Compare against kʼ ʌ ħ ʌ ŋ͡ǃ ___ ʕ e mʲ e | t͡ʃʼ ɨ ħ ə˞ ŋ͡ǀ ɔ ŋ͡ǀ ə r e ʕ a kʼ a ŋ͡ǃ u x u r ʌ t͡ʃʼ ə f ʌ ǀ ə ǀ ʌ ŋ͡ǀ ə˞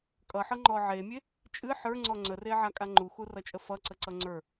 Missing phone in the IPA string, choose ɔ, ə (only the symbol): ɔ